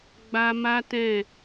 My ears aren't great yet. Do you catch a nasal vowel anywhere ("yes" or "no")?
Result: yes